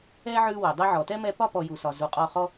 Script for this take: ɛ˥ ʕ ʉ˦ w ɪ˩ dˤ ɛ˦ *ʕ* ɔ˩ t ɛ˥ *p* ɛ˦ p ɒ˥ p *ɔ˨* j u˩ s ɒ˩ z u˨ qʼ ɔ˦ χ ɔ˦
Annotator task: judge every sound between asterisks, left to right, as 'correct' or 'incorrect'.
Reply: correct, incorrect, correct

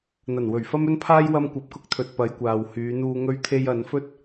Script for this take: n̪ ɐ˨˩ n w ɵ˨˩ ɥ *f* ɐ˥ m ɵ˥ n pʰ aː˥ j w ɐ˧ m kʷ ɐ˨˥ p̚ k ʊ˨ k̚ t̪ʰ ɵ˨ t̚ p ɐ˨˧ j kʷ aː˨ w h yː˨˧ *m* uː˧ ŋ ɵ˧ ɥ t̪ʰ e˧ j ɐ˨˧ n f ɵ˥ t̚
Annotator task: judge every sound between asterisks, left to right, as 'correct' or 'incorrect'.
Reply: correct, incorrect

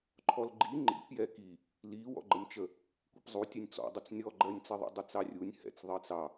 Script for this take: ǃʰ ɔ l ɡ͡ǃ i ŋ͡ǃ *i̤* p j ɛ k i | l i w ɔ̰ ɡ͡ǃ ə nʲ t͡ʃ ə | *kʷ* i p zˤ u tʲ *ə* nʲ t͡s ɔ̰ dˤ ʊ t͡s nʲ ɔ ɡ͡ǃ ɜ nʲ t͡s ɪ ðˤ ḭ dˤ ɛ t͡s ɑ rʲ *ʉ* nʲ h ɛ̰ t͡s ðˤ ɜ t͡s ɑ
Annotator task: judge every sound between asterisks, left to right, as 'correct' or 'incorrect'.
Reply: incorrect, correct, incorrect, incorrect

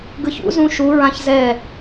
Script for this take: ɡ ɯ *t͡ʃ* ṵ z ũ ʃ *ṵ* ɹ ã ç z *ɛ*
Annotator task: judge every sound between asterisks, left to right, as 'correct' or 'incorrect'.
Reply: incorrect, incorrect, correct

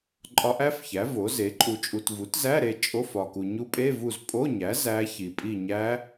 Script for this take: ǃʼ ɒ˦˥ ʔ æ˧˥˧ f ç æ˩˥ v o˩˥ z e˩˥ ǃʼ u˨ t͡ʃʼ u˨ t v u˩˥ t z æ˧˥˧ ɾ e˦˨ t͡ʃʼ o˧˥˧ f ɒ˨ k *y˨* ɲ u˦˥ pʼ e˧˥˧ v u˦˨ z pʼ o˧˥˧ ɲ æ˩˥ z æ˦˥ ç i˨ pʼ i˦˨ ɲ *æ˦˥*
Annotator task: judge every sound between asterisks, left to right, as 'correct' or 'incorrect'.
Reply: incorrect, correct

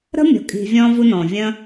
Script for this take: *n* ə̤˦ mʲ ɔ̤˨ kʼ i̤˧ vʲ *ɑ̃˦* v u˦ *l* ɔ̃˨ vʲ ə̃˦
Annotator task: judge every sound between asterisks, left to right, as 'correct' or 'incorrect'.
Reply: incorrect, incorrect, incorrect

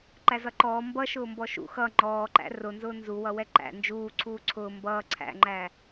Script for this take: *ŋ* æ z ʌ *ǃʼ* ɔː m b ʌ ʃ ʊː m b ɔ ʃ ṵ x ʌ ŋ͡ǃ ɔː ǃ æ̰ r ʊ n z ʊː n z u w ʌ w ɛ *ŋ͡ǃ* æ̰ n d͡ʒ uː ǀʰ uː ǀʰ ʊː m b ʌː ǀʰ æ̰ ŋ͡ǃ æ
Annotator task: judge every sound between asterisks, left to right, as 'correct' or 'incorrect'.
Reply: incorrect, incorrect, incorrect

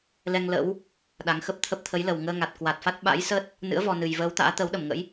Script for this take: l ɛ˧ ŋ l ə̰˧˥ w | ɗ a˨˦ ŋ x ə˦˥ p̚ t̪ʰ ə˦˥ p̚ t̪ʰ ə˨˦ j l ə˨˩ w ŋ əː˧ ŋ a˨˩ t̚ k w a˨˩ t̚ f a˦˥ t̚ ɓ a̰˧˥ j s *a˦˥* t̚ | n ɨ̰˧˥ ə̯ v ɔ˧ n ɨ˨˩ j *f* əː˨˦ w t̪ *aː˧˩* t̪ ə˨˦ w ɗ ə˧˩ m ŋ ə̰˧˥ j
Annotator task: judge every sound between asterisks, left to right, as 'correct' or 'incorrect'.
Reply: incorrect, incorrect, incorrect

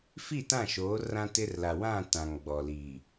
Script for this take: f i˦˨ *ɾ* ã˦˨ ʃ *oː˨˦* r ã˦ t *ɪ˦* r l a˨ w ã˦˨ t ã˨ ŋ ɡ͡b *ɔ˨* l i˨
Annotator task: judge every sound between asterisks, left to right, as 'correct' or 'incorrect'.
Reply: incorrect, correct, correct, correct

